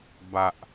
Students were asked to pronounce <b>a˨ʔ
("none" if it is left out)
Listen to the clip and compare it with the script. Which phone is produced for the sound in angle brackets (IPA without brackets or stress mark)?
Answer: b